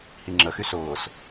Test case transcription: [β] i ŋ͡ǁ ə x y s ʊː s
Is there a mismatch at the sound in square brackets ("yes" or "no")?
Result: yes